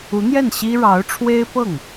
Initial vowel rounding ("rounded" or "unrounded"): rounded